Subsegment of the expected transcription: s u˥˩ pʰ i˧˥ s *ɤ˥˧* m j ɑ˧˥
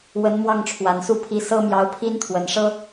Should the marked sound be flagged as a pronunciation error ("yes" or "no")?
yes